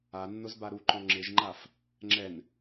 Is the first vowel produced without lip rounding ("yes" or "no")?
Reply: yes